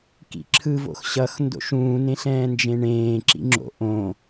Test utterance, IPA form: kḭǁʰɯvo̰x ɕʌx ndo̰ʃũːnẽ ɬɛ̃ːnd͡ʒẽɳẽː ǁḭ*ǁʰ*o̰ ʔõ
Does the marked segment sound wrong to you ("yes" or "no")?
yes